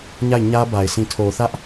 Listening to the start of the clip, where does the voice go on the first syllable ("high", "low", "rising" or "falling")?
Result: falling